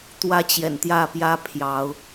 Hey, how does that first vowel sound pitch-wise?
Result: high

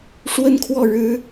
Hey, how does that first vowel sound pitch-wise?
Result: high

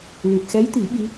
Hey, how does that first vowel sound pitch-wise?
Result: low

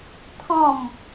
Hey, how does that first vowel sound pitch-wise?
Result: falling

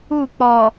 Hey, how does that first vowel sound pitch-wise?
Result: falling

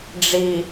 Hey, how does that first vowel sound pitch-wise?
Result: low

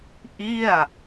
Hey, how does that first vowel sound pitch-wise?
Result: falling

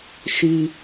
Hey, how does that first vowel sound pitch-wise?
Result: high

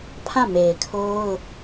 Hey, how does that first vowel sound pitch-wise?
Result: falling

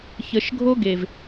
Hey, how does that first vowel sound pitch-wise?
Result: low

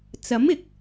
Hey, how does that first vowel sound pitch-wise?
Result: rising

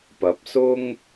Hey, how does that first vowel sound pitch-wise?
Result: rising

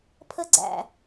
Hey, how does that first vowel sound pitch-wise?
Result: high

